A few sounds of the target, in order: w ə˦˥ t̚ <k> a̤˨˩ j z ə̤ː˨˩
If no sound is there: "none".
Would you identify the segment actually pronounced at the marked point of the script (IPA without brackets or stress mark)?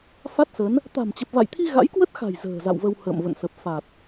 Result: x